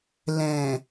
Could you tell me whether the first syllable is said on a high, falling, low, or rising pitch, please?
low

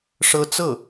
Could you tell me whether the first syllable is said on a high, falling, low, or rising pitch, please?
high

